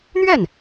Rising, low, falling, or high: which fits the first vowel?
falling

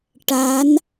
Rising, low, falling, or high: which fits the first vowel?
rising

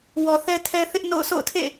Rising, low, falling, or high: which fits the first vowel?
low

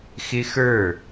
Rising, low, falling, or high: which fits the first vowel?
high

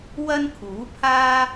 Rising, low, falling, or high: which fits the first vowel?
high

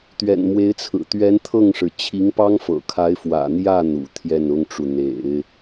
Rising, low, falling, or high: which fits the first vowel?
low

